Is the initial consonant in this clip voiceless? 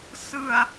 yes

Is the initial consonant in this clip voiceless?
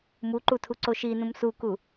no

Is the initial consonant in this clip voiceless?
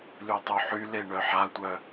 no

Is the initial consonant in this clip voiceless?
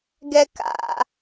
no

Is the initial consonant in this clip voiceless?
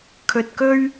yes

